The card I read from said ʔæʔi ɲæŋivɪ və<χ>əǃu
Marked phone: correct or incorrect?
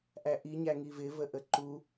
incorrect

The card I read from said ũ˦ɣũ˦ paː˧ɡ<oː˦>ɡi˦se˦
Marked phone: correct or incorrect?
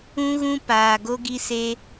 incorrect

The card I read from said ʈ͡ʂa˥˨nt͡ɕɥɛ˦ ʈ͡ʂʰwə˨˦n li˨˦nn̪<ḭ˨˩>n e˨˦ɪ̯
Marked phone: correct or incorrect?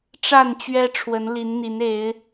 incorrect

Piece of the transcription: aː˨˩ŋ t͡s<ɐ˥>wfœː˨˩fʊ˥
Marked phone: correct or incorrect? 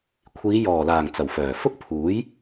incorrect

